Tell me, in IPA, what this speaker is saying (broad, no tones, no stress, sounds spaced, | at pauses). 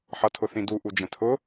ħ ʌ tʰ ʊ θ ĩ d u ʔ u d͡ʒ ə̃ tʰ ʊ